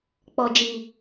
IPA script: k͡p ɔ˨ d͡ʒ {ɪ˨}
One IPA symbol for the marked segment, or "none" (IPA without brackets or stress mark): i˨